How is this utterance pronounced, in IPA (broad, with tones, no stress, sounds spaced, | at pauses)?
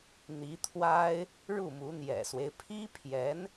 n̪ i˧˥ t̪ʰ w a˥ ɪ̯ | ɻ u˥˩ m u˧˥ n̪ j ɛ̰˨˩ s w e˦ ɪ̯ pʰ i˥ pʰ j ɛ˧˥ n